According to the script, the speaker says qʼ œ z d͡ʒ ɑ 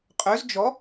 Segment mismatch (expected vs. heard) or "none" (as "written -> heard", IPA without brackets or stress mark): ɑ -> ɔ